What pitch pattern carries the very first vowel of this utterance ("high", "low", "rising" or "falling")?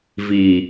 low